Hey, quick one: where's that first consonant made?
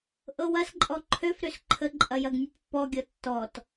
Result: throat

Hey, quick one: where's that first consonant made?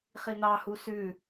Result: uvula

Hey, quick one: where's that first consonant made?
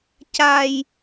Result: palate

